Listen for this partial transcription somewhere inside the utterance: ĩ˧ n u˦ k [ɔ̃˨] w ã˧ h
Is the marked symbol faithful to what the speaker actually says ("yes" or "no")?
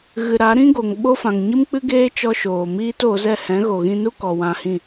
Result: no